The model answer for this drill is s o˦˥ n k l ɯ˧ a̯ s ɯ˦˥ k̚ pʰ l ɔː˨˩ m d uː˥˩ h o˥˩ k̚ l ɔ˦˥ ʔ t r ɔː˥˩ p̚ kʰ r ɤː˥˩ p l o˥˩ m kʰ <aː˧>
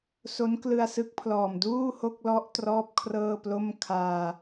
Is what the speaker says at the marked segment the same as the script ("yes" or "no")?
yes